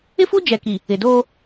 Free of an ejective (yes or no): yes